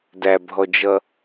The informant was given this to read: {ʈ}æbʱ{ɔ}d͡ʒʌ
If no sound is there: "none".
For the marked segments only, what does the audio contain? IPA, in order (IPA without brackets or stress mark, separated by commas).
d, ɔ